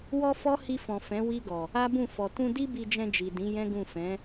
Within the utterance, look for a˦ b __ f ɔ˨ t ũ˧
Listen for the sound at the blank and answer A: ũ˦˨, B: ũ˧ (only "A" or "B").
A